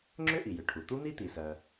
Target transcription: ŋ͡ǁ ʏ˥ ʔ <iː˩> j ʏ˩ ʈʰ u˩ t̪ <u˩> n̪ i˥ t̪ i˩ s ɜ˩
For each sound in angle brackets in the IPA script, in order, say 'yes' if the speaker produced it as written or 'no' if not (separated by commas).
no, no